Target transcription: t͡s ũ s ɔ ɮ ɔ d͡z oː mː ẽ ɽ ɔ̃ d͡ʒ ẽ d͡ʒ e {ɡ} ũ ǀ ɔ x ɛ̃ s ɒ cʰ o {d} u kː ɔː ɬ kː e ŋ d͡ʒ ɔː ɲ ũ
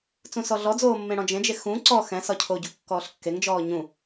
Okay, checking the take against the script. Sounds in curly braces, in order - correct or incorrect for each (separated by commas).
incorrect, incorrect